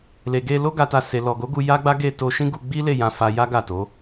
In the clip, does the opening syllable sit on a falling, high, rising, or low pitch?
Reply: low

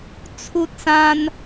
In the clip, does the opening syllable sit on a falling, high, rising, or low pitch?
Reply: high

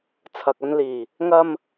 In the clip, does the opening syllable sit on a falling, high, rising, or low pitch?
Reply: low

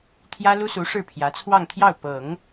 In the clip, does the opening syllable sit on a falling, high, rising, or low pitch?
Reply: high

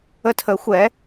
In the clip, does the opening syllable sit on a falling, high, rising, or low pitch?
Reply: high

